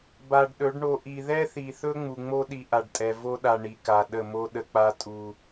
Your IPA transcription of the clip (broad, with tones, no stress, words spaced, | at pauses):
ba˨ɖ ɗɵ˨˦ɖɳo˧ ʔi˨ðɛ˦θi˨θɵ˦ ŋ͡mu˨ŋ͡mo˦ ɗi˧ʔa˨ɖtʼɛ˨ vo˦ɗa˨ ɳi˨ka˨ ɗə˦˨mo˦ ɗə˧k͡pa˦ tʼu˨